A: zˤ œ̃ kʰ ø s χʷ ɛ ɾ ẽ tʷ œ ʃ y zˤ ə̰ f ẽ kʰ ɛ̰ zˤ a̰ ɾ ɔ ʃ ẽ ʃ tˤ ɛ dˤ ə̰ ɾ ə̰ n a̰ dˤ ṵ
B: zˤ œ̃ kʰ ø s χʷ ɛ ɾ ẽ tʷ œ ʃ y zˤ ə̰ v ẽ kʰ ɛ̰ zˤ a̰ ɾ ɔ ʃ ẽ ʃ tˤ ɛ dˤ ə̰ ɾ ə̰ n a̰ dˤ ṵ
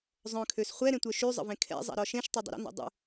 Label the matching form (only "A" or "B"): B